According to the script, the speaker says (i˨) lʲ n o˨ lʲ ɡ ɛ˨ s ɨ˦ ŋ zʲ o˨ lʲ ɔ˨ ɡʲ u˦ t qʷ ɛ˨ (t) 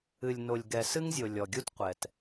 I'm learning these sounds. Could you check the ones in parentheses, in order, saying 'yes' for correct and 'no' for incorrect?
no, yes

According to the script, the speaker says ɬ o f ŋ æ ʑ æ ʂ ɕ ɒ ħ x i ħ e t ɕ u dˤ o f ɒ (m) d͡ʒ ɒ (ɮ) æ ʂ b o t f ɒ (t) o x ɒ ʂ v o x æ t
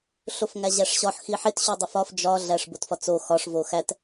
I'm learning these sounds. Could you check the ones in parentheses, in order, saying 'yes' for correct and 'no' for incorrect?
no, yes, no

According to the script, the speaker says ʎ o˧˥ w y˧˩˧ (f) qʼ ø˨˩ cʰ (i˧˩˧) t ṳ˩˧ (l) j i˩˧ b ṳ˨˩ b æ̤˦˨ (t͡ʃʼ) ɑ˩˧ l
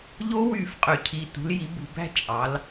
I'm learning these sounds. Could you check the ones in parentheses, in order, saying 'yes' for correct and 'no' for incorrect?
yes, no, yes, yes

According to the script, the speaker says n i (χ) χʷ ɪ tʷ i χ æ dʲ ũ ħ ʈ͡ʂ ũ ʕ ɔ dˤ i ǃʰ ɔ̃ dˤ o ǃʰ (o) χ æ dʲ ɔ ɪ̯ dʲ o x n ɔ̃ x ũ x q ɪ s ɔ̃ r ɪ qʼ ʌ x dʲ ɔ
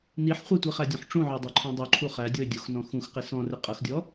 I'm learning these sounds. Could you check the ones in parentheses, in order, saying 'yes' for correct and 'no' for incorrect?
no, no

